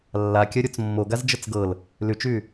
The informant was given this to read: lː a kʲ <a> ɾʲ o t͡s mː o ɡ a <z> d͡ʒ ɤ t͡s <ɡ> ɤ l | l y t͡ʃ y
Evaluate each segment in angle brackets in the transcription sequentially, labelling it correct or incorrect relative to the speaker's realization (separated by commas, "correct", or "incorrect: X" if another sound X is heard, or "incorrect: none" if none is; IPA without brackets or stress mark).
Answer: incorrect: ɐ, correct, correct